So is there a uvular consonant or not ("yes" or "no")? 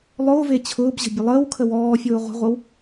yes